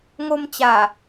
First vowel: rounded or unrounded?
rounded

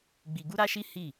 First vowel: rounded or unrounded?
unrounded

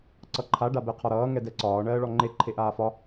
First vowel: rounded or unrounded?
unrounded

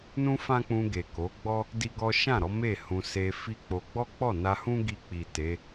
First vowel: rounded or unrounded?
rounded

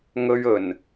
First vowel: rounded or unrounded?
rounded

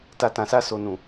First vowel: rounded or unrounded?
unrounded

